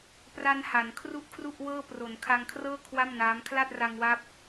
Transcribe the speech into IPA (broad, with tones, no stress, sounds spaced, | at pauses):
p r a˧ n h a˩˦ n kʰ r u˥˩ ʔ kʰ r u˥˩ ʔ w ɤː˥˩ p r o˩˦ n kʰ a˧ ŋ kʰ r ɤː˥˩ kʰ w a˥˩ m n aː˦˥ m kʰ l a˥˩ t̚ r a˧ ŋ w a˦˥ p̚